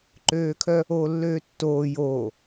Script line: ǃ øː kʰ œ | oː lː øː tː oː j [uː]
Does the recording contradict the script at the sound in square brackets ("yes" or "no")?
yes